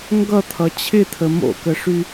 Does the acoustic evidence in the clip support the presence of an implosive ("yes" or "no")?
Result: no